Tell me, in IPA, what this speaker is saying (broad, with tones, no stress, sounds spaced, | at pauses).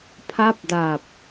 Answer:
pʰ a˥˩ p̚ d aː˨˩ p̚